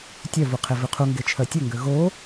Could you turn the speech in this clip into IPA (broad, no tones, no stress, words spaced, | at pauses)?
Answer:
tʲœvuqʰe vʉqʰuŋɡet͡ʃʰœ tʲɵŋɡø ɣo